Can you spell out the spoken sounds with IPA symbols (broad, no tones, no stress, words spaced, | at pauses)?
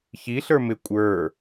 çiɬə˞ mɪ kʷʼə˞